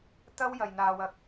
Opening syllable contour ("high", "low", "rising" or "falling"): high